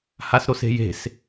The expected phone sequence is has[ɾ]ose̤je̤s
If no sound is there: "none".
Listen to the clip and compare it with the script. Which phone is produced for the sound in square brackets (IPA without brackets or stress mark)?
ɾ